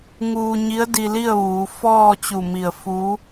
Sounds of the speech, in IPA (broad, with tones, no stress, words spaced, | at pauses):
ŋuː˧ɲi˧˥ə̯ di˧li˥˨ə̯ʋuː˩˧ fɔː˥˨t͡ɕu˧˩mi˧˩ə̯ fu˧˥